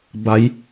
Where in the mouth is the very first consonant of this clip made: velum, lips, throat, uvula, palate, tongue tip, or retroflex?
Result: lips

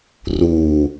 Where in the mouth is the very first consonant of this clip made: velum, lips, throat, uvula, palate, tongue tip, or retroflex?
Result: tongue tip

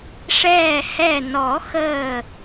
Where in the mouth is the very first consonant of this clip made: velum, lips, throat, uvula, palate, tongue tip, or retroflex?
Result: retroflex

